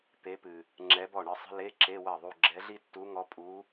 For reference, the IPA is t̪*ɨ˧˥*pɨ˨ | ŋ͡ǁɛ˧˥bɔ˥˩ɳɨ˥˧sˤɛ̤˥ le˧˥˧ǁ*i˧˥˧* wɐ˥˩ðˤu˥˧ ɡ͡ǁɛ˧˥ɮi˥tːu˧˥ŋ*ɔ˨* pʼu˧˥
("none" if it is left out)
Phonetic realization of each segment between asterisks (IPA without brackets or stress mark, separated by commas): e˧˥, e˧˥˧, ɔ˧˥